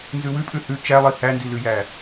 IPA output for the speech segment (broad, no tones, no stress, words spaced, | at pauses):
nzʉwʉpʼʉ hʉ t͡ʃælˠi hændilʉjæ